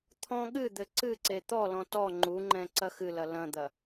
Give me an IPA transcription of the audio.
t̪ʰ ɔ̃ ɠ ɨ d̪ ɘ ǀ ɨ ǀ e t̪ ɔ l ɔ̃ t ɔ ŋ͡ǃ u ŋ͡ǃ ɛ̃ ǀ ɐ x ɨ l ɐ l ɐ̃ d̪ ɐ

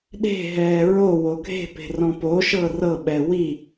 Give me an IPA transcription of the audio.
ɗ e̤ ɦ ɛː ɹ o w o ɡʱ e̤ p e̤ r ɔ̃ p o ʃ ɤ r ɤ ɓ ɛ w i

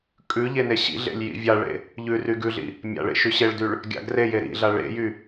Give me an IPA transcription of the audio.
kʼ ʉ ʎ e n e ɕ ḭ ɮ ḛ lʲ j ḭ vʲ a ɭ ḛ | ʎ ʉ r y ɡ ʉ ɮ ḭ | mʲ a̰ ɭ ḛ ʃ y ɕ e ɭ d y ɭ | ɡʲ a̰ ɡ r e j e ɾ ḭ ɮ a ɭ ḛ j y

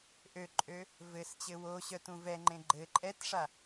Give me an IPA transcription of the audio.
ʔ ø ǃʼ ø | v ɘ s t͡ɕ ɘ w o ɕ œ t ũ v ɛ ŋ͡ǃ ẽ ɡ͡ǃ ɘ ǃʼ ɛ t ʂ a

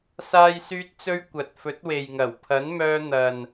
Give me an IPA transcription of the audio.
s aː˥ j s yː˥ t̚ t͡s ɵ˥ ɥ kʷ ɐ˨ t̚ f ɵ˨˥ t̚ w e˨ j ŋ ɐ˨˩ w pʰ ɐ˨˥ n m œː˧ n̪ ɐ˨ n

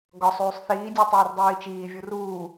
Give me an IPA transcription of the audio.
ɡ ɒ sˤ uː sˤ θ iː dʲ u tˤ uː r dˤ iː t͡ʃ iː vʲ u r uː

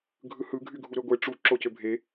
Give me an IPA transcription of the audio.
ɡʱ ɯ h ɯ ɡʱ y ɡʱ u ɾ ø ɡʷ e ʈ͡ʂ u ǁ o c ø bʱ e

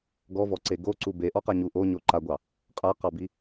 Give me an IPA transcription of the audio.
ɡ ɔ v ɔ ǀ e ɡ o ǀ u b e ʔ ɔ q a ɲ u ʔ o ɲ o ǃ a ɡʷ ɑ | qʼ a q ɑ b i

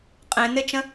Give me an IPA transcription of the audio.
qʼ ẽ n ɪ t͡ʃ ə̃

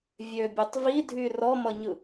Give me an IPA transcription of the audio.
vʲ ø bʲ ø tˤ v i dʱ y r ɔ m ʌ ɲ ɯ

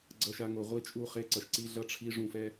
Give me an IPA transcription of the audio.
ɡ͡ǀ ʌ˨ ʃ a˨ ŋ o˨ ʁʷ i˦ t͡ʃʼ u˦˨ χ e˦ ǀ ʌ˨ ʃ ǀ i˦ ɮ ʌ˦ ʈ͡ʂʰ i˦ ʐ ũ˦˨ f ɛ˦

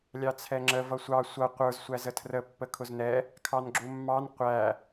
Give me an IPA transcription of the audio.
lʲ ɑ t͡sʰ ɛ ŋ͡ǁ ə v ʌ sʷ ɑ sʷ ʌ qʷ ə˞ z sʷ æ z ə tʰ r ə pː ə kʰ ʊ z n ɛ | kʰ ɑ n ɡ͡ǁ u mː ɑ n qʷ æ

